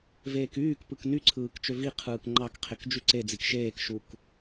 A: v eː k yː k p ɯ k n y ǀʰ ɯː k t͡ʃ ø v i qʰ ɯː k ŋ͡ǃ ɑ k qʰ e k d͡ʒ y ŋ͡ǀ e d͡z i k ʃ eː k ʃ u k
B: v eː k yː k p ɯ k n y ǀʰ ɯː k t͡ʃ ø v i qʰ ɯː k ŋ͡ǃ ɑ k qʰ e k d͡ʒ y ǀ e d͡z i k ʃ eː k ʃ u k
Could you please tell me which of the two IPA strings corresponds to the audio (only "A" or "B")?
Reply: B